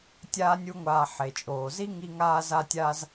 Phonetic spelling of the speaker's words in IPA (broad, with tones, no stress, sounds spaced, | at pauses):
tʲ aː˦ nʲ u˦ ŋʷ aː˧ ħ e˨ t͡ʃʼ oː˨ z i˦ ŋ i˧ ŋ aː˧ z a˧ tʲ aː˧ z